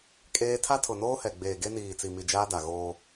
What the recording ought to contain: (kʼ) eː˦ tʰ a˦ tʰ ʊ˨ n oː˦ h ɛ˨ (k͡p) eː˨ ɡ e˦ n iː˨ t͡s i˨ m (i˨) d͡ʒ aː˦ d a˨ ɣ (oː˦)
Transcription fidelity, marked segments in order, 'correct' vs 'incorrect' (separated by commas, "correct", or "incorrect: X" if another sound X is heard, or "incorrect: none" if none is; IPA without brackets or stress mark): correct, incorrect: ɡ͡b, correct, correct